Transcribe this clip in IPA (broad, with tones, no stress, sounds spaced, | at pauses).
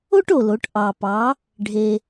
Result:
o˥ ʈ o˩ l o˩˧ ʈ ʔ ɑ˩ p ɑ˩˧ | ɖʱ e˩